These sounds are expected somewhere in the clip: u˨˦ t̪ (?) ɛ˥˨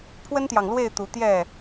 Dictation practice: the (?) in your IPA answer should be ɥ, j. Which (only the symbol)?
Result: j